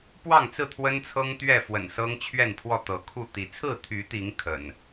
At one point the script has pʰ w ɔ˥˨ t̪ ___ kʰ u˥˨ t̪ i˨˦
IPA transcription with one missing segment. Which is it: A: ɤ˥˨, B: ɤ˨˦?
B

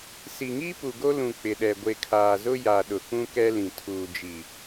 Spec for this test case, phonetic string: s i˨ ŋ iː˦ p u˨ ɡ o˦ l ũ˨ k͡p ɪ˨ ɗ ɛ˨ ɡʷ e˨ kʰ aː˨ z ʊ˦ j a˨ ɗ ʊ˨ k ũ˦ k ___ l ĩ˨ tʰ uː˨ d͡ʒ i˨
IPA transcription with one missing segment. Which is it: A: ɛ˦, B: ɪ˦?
A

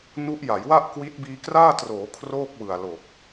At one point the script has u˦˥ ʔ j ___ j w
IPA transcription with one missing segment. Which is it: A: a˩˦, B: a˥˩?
A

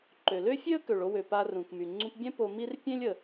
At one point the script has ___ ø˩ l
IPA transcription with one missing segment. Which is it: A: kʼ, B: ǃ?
B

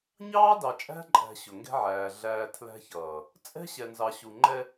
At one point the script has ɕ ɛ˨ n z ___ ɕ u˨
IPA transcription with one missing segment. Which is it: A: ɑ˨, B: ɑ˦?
A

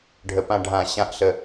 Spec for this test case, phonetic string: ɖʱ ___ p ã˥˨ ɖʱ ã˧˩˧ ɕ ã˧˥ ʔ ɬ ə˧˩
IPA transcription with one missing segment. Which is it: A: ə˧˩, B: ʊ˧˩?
A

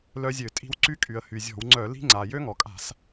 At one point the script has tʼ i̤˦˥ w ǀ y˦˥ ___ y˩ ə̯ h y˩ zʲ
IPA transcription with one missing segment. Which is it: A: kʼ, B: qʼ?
A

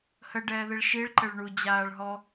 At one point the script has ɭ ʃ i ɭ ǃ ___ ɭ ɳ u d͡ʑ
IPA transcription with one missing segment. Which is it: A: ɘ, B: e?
A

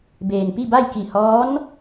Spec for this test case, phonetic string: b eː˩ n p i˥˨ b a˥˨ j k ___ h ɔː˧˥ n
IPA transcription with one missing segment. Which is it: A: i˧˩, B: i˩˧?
A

